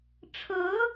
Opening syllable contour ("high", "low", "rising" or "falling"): rising